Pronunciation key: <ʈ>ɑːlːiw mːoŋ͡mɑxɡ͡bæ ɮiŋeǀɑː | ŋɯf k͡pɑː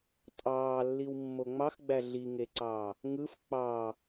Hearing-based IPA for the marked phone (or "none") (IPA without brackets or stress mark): tʼ